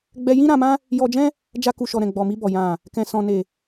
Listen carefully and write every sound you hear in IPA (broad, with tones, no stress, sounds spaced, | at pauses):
ɡ͡b ɛ˧ j ĩ˦ ɾ ã˧ m ã˦ | j ɔ˧ d͡ʒ ɛ̃˦ | d͡ʒ a˧ k u˨ ʃ ɔ˨ ɾ ɛ̃˨ ɡ͡b ɔ˨ m i˧ b ɔ˨ j ã˨ | k ɛ̃˨ s ɔ̃˨ n e˨